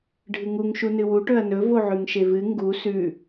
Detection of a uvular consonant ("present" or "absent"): absent